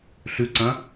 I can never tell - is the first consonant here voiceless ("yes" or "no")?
yes